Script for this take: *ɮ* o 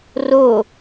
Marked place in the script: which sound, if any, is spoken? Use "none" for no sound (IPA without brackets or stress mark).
r